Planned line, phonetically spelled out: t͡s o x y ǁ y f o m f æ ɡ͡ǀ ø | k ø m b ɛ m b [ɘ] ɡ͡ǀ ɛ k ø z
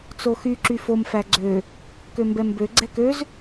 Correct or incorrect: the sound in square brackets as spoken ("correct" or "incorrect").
incorrect